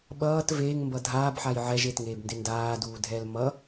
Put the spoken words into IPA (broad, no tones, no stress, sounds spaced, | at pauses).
ɓ ʌː t v eː ŋ m b ʌ dʱ aː b ħ a j ʕ ɛ ʒ e t ŋ eː b n d e n d aː d uː dʱ ɛː l m ʌ